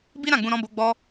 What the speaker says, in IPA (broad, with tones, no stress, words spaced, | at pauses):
bi˦ɾã˦˨ɡ͡bũ˧ ɾɔ̃˦bo˦ɡ͡bɔ˦